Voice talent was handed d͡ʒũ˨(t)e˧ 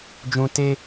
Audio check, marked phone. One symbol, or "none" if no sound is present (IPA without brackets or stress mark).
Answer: t